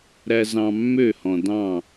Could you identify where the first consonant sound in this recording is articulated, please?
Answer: alveolar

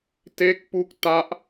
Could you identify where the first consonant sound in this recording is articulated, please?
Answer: alveolar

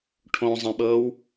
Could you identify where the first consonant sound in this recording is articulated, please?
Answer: retroflex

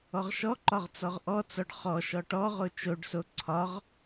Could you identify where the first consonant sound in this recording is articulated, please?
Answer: uvular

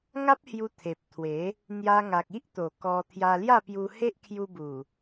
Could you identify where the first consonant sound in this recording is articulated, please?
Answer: velar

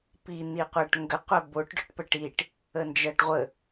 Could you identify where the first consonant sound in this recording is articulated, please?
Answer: labial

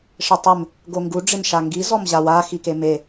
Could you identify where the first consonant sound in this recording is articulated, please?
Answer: retroflex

